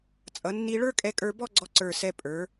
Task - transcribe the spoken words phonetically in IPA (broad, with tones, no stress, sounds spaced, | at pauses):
t͡sʼ ʌ˩˧ nː i˧ ɭ ə˞˥ kʼ ɛ˧ kʼ ə˞˧ b ɔ˥˧ ɡ͡ǀ ɔ˧ ǀ ə˞˧˩ s ɛ˧ pʼ ə˞˩˧